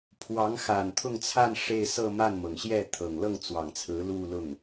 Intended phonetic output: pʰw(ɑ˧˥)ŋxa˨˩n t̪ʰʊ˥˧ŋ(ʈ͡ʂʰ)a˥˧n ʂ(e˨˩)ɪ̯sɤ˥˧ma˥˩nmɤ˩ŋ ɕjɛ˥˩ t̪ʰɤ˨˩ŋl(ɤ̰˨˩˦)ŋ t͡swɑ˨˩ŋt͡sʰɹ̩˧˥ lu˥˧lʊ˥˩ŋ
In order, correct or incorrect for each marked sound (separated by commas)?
correct, incorrect, incorrect, incorrect